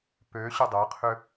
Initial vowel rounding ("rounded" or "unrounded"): rounded